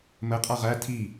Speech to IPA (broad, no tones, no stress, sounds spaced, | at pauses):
m ə qʼ a ʁ æ tʰ i